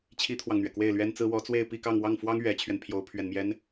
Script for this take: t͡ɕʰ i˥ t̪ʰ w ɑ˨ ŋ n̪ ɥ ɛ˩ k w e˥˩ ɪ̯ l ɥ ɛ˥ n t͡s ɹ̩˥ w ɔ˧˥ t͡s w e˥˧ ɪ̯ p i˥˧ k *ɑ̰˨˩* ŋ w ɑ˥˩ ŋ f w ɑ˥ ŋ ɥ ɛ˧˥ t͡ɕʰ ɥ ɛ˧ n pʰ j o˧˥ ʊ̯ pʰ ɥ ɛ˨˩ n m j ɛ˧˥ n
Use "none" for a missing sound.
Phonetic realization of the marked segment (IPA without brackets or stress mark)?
ɑ˥˧